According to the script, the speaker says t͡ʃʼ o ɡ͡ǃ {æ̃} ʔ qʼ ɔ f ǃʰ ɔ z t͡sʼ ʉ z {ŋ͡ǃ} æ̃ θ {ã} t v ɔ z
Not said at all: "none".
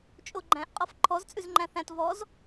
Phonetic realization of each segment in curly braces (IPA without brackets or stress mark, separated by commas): æ̃, ŋ͡ǃ, æ̃